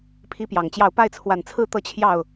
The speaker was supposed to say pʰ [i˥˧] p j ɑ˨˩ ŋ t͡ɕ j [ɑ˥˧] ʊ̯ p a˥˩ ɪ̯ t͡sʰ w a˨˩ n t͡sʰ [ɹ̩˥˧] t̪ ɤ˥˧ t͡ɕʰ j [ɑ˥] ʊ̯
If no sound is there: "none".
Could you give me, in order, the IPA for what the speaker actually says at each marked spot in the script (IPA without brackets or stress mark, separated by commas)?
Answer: i˥, ɑ˥˧, ɹ̩˥˧, ɑ˥˩